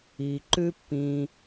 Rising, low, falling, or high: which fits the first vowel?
low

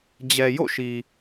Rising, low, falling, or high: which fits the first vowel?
low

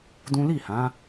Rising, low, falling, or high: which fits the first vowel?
high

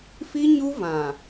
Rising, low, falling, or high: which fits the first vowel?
high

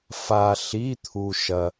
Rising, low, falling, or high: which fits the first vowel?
low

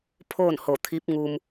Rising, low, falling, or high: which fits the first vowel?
falling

